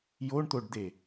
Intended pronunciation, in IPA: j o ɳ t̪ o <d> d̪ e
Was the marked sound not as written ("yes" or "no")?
yes